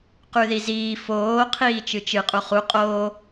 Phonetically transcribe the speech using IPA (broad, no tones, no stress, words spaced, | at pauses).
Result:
qʉðiziː foː qʰiːt͡ʃɨt͡ʃɨ qʼuχu qʼoː